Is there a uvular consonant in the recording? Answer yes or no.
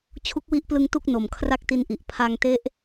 no